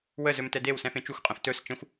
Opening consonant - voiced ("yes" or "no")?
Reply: yes